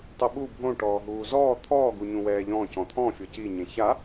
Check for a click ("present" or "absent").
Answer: absent